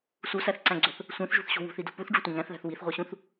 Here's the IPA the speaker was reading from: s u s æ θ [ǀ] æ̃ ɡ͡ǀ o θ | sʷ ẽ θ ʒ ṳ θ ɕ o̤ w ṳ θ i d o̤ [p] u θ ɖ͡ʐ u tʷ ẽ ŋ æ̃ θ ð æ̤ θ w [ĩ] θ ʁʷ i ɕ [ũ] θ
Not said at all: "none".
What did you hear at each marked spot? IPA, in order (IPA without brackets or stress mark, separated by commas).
ǀ, p, i, ũ